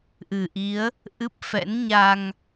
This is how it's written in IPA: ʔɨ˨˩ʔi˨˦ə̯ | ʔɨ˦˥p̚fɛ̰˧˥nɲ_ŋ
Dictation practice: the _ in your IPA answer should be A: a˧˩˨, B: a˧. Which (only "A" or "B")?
B